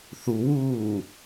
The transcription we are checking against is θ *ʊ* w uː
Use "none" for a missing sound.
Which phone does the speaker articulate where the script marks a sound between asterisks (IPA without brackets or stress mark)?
u